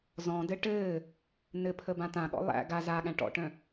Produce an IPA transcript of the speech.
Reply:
zɔ̃dɘ ʈɘː | nɘpʰəbã t̪ãɠɔ̰ lˠæ̰ ɡa zaɠæ̃ ʈɔ̰ʈœ̃

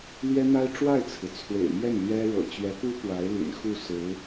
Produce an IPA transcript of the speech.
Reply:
lɥɛ˥n̪a˥ɪ̯ ʈ͡ʂwa˥˩ɪ̯t͡sʰɹ̩˩ t͡sʰwḛ˨˩ɪ̯mjɛ˥˩n lɥɛ˥ɻɤ̰˨˩ t͡ɕɥɛ˧˥pu˥ pwa˧˥ɪ̯lḭ˨˩n xu˥˩ sɹ̩˧˥

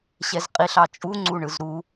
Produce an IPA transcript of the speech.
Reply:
ɕɛzqʼiɬ ɑt͡ʃʼu ŋ͡ǀuɳɯzɾu

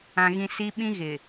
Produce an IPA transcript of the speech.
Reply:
ã˨ɣĩ˨ si˦ɓĩ˦ ɣɪ˨

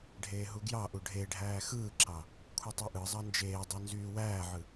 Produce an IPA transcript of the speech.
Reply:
ɖʱeːɦuɡjɑʔu ɖʱeɖʱæː xɯːǁɑ | kʷʰɯtˤoʔɯzˤɑ nd͡ʒeːdˤø nzyːwæːʕɯ

